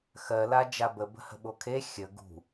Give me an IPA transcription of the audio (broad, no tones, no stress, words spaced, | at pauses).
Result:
xɜla d͡ʒabə bə̤hə̤ɓokʰe xʲə ɡṳ